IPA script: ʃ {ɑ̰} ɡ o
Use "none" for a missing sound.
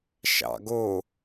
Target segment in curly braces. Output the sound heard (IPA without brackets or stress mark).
ɑ̰